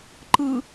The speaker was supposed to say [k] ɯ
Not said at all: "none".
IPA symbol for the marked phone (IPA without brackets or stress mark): ǃ